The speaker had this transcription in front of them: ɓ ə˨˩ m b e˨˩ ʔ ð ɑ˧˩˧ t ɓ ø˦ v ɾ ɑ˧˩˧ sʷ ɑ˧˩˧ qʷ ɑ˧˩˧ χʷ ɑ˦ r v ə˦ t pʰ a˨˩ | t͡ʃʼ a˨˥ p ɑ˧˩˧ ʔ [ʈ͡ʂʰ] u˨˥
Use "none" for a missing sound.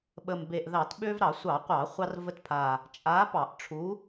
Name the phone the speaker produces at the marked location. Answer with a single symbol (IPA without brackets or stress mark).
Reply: ʈ͡ʂʰ